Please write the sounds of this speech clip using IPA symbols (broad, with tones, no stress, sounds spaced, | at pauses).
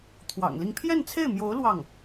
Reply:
t̪ʰ w ɑ̰˨˩ ŋ l i˥˧ ŋ pʰ j ɛ˥˧ n t͡sʰ e˥˩ ɪ̯ m j o˧˥ ʊ̯ l w ɑ˥˩ ŋ